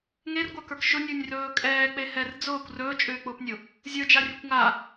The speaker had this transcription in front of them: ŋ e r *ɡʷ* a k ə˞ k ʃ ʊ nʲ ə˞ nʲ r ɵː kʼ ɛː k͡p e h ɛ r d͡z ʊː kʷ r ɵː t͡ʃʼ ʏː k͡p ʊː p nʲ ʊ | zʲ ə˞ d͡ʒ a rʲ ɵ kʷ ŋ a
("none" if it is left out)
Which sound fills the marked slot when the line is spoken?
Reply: ɡʷ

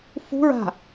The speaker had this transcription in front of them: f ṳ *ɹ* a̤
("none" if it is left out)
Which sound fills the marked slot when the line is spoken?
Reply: ɹ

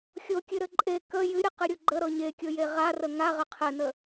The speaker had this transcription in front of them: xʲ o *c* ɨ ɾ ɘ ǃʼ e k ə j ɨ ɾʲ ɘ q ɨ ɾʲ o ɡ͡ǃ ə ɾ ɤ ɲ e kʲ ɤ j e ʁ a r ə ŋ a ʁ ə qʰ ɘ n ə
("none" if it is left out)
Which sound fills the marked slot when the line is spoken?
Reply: kʲ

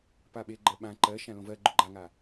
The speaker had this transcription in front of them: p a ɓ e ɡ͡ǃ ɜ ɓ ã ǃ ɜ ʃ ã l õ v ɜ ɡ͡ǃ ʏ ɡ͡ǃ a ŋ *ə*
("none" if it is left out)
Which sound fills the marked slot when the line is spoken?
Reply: a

